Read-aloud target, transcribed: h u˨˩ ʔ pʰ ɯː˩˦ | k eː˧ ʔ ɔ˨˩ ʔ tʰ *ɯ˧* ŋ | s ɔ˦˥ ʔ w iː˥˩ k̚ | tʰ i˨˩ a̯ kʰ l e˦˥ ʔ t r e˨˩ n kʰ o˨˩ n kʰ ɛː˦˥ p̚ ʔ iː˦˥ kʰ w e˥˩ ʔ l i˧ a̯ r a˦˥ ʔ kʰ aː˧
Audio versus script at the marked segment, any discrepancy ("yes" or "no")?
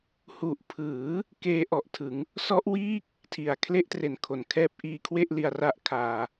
yes